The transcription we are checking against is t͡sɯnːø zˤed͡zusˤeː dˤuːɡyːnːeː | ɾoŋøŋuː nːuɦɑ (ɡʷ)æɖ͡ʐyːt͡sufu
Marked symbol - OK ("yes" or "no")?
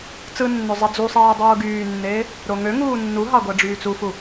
yes